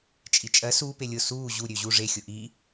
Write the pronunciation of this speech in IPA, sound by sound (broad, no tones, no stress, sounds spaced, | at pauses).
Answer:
t͡ʃʼ i t͡ʃʼ ɜ s u p e lʲ ʊ s uː ʑ u ɾʲ ø ʑ u ʐ e xʲ ʊ ʔ i